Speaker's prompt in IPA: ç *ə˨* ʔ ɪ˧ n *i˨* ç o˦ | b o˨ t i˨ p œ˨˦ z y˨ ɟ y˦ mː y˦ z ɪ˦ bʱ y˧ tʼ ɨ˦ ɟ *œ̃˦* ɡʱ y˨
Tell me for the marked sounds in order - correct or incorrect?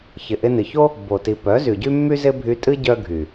incorrect, incorrect, incorrect

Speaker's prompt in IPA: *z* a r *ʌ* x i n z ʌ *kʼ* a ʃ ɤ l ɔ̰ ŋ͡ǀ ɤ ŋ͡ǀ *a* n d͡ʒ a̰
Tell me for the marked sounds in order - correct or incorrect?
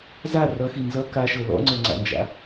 correct, correct, incorrect, incorrect

